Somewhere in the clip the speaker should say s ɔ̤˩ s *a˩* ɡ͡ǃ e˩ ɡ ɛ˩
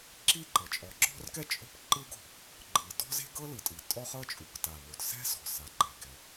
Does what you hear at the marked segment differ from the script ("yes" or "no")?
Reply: no